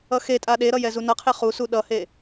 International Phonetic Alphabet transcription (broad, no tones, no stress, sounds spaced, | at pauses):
ʌ x e tʼ a ɗ e ɾ ʌ j ɛ z u n ʌ qʰ e χ u s u ɗ ʌ h e